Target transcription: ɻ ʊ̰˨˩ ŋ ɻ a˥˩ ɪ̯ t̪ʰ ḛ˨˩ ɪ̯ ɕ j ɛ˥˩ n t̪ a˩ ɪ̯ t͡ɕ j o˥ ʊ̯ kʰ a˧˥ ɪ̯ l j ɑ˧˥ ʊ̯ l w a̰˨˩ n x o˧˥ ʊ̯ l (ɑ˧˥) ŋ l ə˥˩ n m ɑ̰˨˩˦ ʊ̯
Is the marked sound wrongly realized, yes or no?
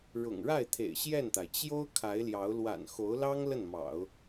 yes